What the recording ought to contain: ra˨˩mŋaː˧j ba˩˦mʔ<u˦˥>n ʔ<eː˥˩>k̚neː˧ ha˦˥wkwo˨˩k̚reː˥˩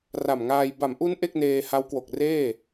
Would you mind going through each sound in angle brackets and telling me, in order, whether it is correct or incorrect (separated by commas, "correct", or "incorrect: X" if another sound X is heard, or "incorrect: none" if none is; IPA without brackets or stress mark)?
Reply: correct, incorrect: e˥˩